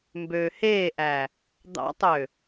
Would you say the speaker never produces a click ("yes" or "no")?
yes